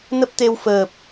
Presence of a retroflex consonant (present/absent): absent